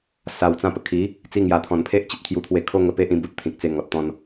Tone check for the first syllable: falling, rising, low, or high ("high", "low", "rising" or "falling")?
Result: low